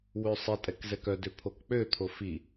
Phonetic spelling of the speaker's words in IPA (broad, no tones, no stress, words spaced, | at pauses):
wøsˤɛtʼɛk zɛkœdø pʰokk͡pøt̪ʰo fi